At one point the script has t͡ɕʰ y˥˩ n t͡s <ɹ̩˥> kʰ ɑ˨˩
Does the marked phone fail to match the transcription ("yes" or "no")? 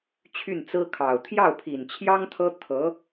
no